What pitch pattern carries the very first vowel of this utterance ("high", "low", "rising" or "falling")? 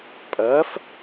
rising